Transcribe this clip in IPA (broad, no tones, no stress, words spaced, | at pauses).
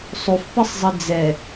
sˤufpɘsˤzˤɘ d͡zɛ